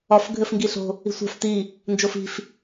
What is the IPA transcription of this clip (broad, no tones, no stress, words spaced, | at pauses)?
ɒf ɡʱɘfŋɡiɬo̤ | i̤sʷa̤f ti | nd͡ʒofi̤f